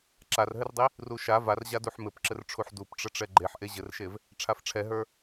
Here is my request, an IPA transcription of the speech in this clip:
ǁ a r ɦ ɘ r dˤ i | r u ʃ a v a r ʑ a d u ħ m ɘ p ǁ ɘ r ʈ͡ʂʰ u ħ d u p ʈ͡ʂ ə ʈ͡ʂ ɛ ɡ͡ǃ e ħ ʔ e ʑ ɘ r ʃ e v | ʈ͡ʂʰ a f ʈ͡ʂʰ ɛ ɦ ə˞

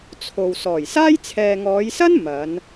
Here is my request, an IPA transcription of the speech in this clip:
t͡sʰ o˨ w s ɔː˨˩ j s aː˥ j t͡sʰ ɛː˨ ŋ ɔː˨˧ j s ɐ˥ n m ɐ˨˧ n

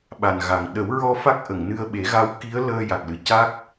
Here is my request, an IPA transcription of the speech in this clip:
ɓ a˨˩ n ɣ a˨˩ ŋ ɗ ə˨˩˦ w ɹ ɔ˧ f a˦˥ k̚ ʔ ə˨˩˨ ŋ n ɨ˧ ə̯ ɓ e˨˩˦ ɣ a˧˥ w k i˧˥ ə̯ l əː˧ j a˨˩ k̚ l ɨ˨˩ c a˦˥ k̚

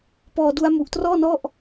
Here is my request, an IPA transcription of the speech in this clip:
p ɔː˧ d u˦˥ a̯ m u˨˩ ʔ t r ɔː˥˩ n ɔ˥˩ ʔ

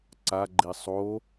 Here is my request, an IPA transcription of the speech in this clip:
ǀ a ɡ͡ǃ i sˤ o

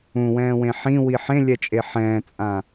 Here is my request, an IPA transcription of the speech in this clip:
ũ w ɛ̃ː w ẽ ħ ĩ w i ħ ẽ lʲ ɛ t͡ʃʼ e ħ ɛ̃ː t͡sʼ ã

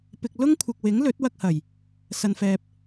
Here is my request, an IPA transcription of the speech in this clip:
p ɪ˨ k̚ l ʊ˥ ŋ kʷʰ ɪ˨ k̚ w ɪ˨˥ ŋ l ɵ˨˥ t̚ w ɐ˧ k̚ h ɐ˨˩ j | s ɐ˨ n f ɛː˨ p̚

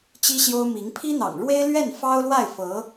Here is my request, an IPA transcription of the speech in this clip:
t͡ɕ i˥ ɕ j o˥ ʊ̯ m i˧˥ ŋ pʰ i˥ n̪ ɑ̰˨˩ ŋ ɻ w e˥ ɪ̯ l ɥ ɛ˥˩ n f ɑ˥ ʊ̯ l w a˥˩ ɪ̯ f ɤ˧˥

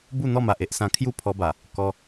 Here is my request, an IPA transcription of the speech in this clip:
b u˥˧ n̪ ɔ˥˧ m a˨ ʔ e˦ ʔ s ã˧ kʰ j u˥˧ pʰ ɔ˧ b a˨˩ | k ɔ˧

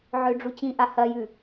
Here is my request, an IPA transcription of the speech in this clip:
ʕ ø ɖ͡ʐ u t͡ɕ ĩ ʔ a h ɐ j ʉ

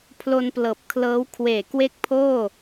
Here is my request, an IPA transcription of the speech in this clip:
pʰ l o˧ n p l ɤː˨˩ p̚ kʰ l ɤː˦˥ w kʰ w eː˨˩ k w e˥˩ k̚ pʰ oː˥˩

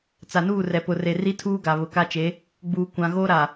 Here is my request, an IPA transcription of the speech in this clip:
t͡s a˨ n uː˦˨ r ɛ˨ p ʊ˨ r e˨ r i˦ tʰ uː˦ ɡ a˨ β ʊ˨ k a˦ t͡ʃ e˨˦ | ɡ͡b uː˨ kʷ ã˨ ɣ oː˦ ɾ a˨

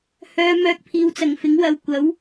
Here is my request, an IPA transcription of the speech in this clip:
h œː˧ m œː˧ k̚ pʰ iː˨ w t͡s ɐ˨˩ ŋ f ɪ˨˥ ŋ w ɐ˧ w kʷ ɐ˨˥ w

